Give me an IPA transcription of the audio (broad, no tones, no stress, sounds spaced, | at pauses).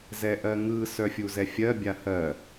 z ɛ ʔ ɜ ŋ ɯ s œ fʲ u z ɛ fʲ ɜ bʲ a h ɜ